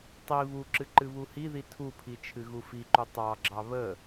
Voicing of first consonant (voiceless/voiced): voiceless